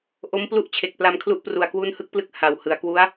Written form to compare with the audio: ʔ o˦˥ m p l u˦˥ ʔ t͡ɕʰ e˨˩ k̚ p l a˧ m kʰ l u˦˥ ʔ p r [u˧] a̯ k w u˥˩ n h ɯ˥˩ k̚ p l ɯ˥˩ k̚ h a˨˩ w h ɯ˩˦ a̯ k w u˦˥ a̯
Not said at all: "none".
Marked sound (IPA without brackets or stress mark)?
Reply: u˨˩